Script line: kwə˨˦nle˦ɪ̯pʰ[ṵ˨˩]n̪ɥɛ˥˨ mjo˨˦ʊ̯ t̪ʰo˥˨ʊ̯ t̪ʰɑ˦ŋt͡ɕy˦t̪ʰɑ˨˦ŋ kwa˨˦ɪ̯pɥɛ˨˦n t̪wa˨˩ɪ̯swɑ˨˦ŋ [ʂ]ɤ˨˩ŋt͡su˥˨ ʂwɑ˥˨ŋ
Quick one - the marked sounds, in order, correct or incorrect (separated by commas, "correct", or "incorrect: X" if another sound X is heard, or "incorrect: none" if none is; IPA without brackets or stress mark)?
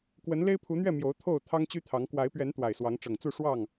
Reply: incorrect: u˨˦, incorrect: ʈ͡ʂ